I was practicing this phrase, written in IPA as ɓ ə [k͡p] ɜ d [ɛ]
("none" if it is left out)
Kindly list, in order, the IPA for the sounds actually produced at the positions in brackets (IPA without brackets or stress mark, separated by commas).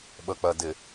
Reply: k͡p, ɪ